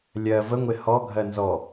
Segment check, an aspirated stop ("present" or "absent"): absent